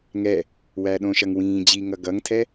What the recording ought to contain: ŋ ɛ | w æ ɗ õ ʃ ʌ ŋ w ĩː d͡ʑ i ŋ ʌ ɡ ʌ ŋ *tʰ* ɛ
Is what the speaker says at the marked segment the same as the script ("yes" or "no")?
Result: yes